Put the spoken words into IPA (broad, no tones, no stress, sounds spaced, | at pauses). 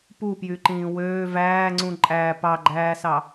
p u p j y ǃ ĩː w øː v æː ŋ͡ǀ ũ ǃʼ æː p ɑ ɡ͡ǃ æː s ɑ